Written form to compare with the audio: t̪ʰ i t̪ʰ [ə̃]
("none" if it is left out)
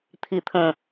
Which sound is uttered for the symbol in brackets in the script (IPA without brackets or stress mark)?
ə̃